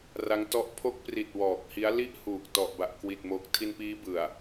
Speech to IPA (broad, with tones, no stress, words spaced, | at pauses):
ra˦˥ŋtɔ˦˥ʔ pʰo˦˥k̚pri˨˩t̚ wɔː˨˩k̚hi˦˥a̯ li˥˩ʔhuː˨˩k̚ tɔ˨˩ʔba˨˩ʔkwi˨˩t̚mo˨˩k̚ tʰi˧npiː˦˥bɯ˨˩a̯